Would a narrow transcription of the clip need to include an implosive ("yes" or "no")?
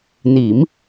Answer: no